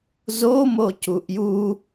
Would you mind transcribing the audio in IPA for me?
z o m o c u ʔ j u

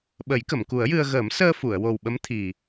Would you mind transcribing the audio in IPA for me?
ɓ ə˨˩˦ j k ə˨˩˨ m k u˨˩˦ ə̯ j ɨ˧ ə̯ ɣ əː˨˩˦ m s əː˧ f u˨˩˨ ə̯ w o˨˩ w ɓ ə˧˥ m t̪ʰ i˨˩

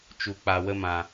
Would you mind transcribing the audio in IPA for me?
t͡ʃ u˨ k͡p a˨ w ə˧ m ã˨

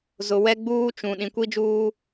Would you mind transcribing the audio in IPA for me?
z ʊ˨ w ɛ˦ ɡ͡b uː˦ t͡ʃ ũ˨ ɗ ĩ˨ kʷ i˦ d͡ʒ uː˦

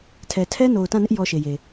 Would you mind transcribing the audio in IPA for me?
tʰ ɛ˨ tʰ ɛ˦ n o˨ ʊ̯ t ã˦˨ n ɪ˦ ʔ j ɔ˦ ʃ e˨ j e˨

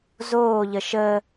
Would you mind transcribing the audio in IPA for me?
z oː ʎ ə ʃ əː

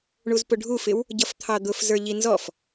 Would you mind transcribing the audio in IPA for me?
ɳ u z p ʊ ɖʱ u f ɪ w | ɟ ʌ f t̪ʰ ɑ d̪ ʊ f z ə˞ ʎ i n z ɔ f

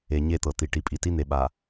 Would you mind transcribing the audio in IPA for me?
e˨ ɲ e˦˨ t̪ ɤ˨ t̪ i˨ ʈ i˨ pʼ i˨ t i˦ n̪ e˨ ɓ a˨

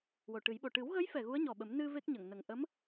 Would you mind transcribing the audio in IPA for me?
w o˨˩ ʈ ɨ˨˩˦ j ɓ o˨˩ ʈ ɨ˨˩˦ w ɣ ə˧˥ j f ɛ˨˩ ɣ u˧˥ ə̯ ɲ ɔ˨˩ ɓ ə˨˩˦ m n ɨ˧ v e˦˥ k̚ ɲ ə˨˩˨ ŋ n ə˨˩ ŋ ʔ ə˧˥ m

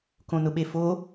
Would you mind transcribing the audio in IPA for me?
k õ n ʊ ɓ e f o

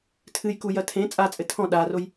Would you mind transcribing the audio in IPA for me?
tʰ ɨ j k u j ɐ tʰ ẽ t͡sʼ a t͡sʼ ɘ tʰ ɔ̃ ɗ a r o j

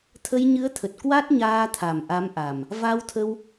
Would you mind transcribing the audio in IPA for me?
t̪ʰ ə˧ j ɲ ɨ˨˦ ə̯ t̪ʰ ə˨˩ t̚ k w a˦˥ t̚ ɲ aː˧ t̪ʰ a˨˩ m ʔ a˨˦ m ʔ a˨˩ m | v a˧ w t̪ʰ ə˧ w

